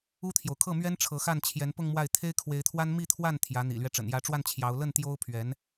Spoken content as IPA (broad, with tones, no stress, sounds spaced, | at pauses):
u˥ t̪ʰ j o˨ ʊ̯ kʰ ɤ˥˩ m ɥ ɛ˥ n ʈ͡ʂʰ ɤ˧˥ x a˥˩ n t͡ɕʰ j ɛ˧˥ n p ʊ˥˧ ŋ m w a˥˩ ɪ̯ t̪ʰ e˥ ɪ̯ kʰ w e˧˥ ɪ̯ t̪ʰ w a˥ n m i˥˧ t̪ʰ w a˥˩ n t̪ʰ j ä˧˥ n̪ ḭ˨˩ l ɥ ɛ˦ ʈ͡ʂ ə̰˨˩ n j ä˧˥ ʈ͡ʂ w a˥˩ n t͡ɕʰ j ɑ˧˥ ʊ̯ l ə˥˩ n t̪ j o˥ ʊ̯ pʰ ɥ ɛ˧˥ n